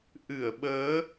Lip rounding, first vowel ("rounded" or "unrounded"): unrounded